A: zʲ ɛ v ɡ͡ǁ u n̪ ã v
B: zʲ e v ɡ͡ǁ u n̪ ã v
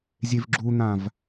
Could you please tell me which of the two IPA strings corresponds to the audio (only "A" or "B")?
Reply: B